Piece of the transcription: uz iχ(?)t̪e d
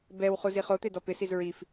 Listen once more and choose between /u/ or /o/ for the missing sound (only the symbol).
o